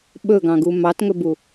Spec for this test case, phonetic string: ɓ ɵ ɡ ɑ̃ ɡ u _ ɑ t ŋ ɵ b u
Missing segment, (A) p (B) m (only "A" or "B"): B